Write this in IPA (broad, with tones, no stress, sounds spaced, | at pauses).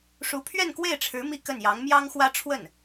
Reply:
ʂ u˧˥ pʰ ɥ ɛ˥˧ n k w e˥˩ ɪ̯ ʈ͡ʂʰ ɻ̩˧˥ m i˥˧ k ə˥˩ n j ɑ˧˥ ŋ m j ɑ˥ ŋ x w ä˥ ʈ͡ʂʰ w ə˥˩ n